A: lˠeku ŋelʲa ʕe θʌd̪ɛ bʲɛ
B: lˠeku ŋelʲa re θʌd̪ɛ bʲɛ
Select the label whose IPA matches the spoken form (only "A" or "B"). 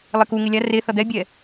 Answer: B